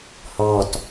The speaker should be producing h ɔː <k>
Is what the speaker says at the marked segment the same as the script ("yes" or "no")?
no